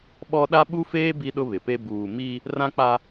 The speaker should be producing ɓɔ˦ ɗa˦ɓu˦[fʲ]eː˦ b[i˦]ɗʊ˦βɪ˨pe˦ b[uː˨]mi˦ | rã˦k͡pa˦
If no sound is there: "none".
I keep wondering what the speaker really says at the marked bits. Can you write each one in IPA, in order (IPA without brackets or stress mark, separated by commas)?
f, i˦, uː˨